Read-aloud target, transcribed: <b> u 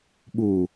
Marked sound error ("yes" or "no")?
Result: yes